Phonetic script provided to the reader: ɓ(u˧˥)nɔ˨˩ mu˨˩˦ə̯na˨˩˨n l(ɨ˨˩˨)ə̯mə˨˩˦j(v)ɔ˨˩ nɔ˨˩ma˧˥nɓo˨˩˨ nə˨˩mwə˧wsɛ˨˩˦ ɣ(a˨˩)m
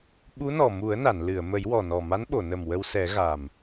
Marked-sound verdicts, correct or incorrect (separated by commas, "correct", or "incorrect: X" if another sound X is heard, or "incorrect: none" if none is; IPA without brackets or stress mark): correct, correct, incorrect: w, correct